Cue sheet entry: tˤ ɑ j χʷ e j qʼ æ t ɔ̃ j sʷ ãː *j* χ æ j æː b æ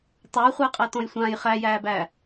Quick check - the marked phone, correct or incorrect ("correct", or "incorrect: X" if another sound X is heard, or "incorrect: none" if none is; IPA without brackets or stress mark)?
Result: correct